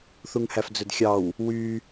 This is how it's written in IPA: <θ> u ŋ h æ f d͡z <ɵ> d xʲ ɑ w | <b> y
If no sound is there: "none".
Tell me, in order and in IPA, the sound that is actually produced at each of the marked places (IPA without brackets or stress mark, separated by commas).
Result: θ, ɵ, w